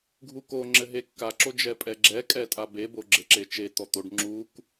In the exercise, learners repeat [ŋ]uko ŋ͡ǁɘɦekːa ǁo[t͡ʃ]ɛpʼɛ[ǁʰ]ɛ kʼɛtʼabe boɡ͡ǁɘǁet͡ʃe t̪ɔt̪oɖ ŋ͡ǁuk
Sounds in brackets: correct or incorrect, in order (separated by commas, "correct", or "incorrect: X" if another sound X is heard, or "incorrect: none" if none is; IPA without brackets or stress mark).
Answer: incorrect: ɡʱ, incorrect: d͡ʒ, incorrect: ɡ͡ǁ